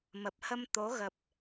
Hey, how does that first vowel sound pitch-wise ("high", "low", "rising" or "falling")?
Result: low